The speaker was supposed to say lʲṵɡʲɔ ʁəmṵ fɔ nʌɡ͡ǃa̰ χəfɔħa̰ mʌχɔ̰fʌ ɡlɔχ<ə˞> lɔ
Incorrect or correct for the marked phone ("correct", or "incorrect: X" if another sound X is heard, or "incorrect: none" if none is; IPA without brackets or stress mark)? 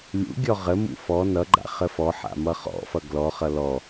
incorrect: ʌ